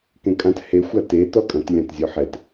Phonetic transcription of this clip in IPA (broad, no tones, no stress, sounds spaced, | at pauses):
k ẽ kʼ ã t h e xʷ a t e t ɔ kʼ ɐ̃ t lʲ ã t zʲ ɔ ħ ɛ t